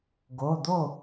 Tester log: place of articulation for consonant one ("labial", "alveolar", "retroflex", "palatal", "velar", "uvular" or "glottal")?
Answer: velar